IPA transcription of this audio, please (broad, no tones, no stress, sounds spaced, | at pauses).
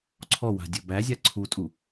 ǀʰ ɔ w a̤ dʲ ɵ b æ zʲ a ǀʰ u tʼ u